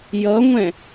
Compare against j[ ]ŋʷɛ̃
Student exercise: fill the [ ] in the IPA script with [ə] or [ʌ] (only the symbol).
ʌ